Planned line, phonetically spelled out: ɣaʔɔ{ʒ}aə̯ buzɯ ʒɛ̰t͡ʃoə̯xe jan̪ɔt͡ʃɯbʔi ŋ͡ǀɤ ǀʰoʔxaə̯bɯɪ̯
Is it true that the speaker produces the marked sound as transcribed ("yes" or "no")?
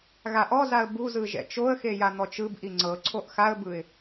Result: no